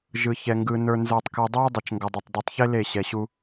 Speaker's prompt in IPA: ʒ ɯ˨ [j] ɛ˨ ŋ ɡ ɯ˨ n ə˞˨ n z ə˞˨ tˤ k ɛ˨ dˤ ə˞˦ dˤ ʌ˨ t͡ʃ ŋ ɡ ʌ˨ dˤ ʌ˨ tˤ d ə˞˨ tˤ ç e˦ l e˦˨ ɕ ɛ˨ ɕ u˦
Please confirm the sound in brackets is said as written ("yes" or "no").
no